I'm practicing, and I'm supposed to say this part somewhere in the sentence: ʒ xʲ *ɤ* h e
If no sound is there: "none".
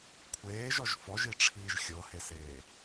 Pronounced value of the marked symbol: ɤ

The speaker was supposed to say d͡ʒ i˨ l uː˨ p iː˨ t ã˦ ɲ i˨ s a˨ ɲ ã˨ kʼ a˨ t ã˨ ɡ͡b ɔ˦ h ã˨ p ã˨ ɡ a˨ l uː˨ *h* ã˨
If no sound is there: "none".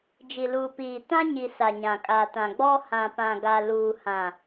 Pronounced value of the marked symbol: h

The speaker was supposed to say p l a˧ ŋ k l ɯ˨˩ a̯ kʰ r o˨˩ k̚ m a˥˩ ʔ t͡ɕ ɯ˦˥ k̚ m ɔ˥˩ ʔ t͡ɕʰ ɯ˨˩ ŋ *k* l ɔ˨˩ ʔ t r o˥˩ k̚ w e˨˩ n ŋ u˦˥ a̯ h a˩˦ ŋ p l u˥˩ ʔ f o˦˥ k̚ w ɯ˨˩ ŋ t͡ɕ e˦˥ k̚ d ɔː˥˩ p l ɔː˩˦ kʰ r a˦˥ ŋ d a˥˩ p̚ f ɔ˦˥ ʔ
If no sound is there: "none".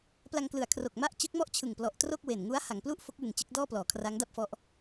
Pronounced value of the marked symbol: p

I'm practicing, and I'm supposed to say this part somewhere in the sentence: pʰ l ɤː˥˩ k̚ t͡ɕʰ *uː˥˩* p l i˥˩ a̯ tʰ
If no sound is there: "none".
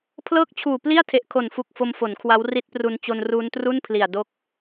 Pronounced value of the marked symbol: uː˨˩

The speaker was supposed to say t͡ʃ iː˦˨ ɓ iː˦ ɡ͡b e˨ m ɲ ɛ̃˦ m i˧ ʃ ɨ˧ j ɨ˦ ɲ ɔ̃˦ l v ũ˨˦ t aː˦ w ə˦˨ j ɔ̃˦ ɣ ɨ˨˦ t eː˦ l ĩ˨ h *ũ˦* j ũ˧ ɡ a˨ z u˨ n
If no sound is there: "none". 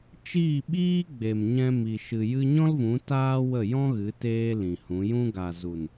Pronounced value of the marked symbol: ũ˨˦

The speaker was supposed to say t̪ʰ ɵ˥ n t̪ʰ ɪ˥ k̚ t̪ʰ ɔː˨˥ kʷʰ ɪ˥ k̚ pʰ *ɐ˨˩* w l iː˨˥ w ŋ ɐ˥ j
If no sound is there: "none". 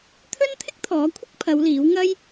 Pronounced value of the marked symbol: ɐ˨˧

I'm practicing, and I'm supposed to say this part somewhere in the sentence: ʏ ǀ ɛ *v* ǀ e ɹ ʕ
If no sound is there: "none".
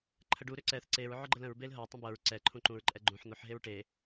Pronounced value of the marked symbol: θ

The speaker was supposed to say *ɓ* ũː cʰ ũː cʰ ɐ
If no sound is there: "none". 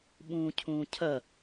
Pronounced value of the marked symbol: ɓ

